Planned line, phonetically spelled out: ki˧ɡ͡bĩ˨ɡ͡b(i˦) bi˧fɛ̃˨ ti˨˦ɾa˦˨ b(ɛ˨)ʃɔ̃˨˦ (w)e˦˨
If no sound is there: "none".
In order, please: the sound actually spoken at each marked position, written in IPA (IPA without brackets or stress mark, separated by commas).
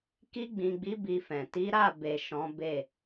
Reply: i˨˦, e˨, b